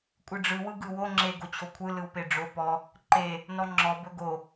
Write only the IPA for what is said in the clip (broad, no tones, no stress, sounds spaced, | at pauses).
kʷʼ ɯ ɖ͡ʐ ɯ w ɯ ɡ ɯ w o ŋ͡ǁ e ɡ o t͡ɕʰ o kʷʰ ɯ l ɯ w p e ɖ͡ʐ o p ɔ | ǃ e | n ɔ ŋ͡ǁ ɔ b ɵ ɡ o